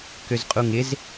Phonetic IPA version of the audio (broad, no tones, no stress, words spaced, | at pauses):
køzqʼuŋɪz